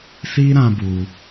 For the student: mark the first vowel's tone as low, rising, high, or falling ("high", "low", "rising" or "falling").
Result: high